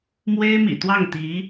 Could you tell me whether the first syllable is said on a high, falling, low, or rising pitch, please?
high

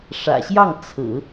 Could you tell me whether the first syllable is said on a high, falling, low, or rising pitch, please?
low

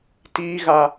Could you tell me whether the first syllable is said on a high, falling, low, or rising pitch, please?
high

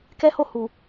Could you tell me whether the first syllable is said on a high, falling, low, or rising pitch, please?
high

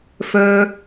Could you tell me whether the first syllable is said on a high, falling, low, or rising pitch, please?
low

